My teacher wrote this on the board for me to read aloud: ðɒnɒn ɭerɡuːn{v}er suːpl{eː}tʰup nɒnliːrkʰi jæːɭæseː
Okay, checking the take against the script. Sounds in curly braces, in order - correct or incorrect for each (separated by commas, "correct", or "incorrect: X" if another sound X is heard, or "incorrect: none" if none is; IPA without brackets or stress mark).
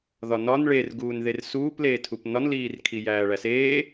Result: incorrect: ð, correct